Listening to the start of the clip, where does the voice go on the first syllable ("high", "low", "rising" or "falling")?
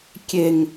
low